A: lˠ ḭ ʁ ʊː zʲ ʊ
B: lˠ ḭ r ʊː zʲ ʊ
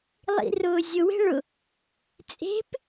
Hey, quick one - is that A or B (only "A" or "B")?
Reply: B